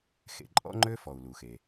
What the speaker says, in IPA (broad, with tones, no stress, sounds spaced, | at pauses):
x ḛ˩ ǃʼ ɔ̰˦ ŋ͡ǃ ø˦ f ɔ˩ u̯ l u˩ x e˩